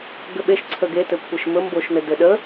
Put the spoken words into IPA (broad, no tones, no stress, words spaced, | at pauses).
ɡɘɓeʃ ǀʰəɡetɘ kʷʰeʃmɵmboʃnɘ dɘɗə